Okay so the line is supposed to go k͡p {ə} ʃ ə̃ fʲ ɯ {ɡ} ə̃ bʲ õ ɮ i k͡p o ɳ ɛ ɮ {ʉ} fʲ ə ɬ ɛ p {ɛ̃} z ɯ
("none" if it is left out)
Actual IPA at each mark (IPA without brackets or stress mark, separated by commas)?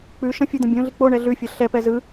ʉ, d̪, ʉ, ɛ